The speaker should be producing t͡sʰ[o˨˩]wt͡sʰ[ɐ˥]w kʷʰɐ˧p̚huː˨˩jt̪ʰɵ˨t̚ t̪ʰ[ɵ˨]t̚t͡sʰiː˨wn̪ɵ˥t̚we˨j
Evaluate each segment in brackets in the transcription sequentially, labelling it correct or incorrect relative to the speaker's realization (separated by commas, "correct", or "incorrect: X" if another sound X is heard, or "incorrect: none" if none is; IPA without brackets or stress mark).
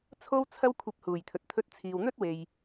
incorrect: o˥, correct, incorrect: ɵ˧